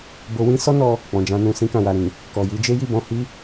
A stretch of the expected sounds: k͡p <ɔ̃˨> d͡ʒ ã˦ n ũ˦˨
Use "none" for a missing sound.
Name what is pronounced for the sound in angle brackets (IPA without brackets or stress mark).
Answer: ɔ̃˧